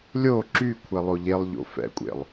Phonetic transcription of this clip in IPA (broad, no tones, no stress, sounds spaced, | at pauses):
lʲ o ǁ y kʷʰ ɛ lˠ o ʎ e lˠ ʎ o̰ f ɛ̰ kʷʼ ḛ lˠ